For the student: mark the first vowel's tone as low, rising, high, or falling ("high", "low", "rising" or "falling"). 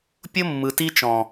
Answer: high